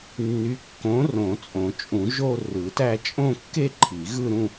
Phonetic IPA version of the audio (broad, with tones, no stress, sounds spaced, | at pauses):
nː y˨˥ kː õ˨˥ r õ˨˩˦ t͡sʼ õ˨˩˦ t͡ʃʼ ũ˨˩˦ ʒ o˥˧ r ɯ˨˩˦ t æ˥˧ t͡ʃʼ õ˥˧ kː e˥˧ ǃʰ i˨˩˦ ɣ ɯ˥˧ ɾ ũ˥˧